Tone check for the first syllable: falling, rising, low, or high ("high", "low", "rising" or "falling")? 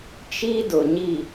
high